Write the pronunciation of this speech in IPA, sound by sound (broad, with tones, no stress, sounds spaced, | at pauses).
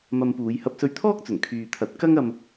m ɐ˧ m p uː˨˧ j h ɐ˧ p̚ s ɵ˧ ɥ t̪ʰ ɔː˥ k̚ t͡s ɵ˨˩ n kʰ yː˨ t̪ʰ ɐ˨˥ t̚ k ɐ˥ ŋ ɐ˧ m